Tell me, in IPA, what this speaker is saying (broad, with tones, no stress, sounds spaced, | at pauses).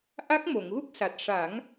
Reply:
ʔ a˦˥ k̚ m o˨˩˨ ŋ ɣ u˦˥ k̚ s a˨˩ t̚ ʂ a˨˩˦ ŋ